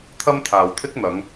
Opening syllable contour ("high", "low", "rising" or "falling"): high